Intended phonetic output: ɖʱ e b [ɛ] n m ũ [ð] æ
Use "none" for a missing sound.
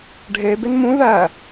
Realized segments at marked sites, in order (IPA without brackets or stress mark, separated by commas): e, ð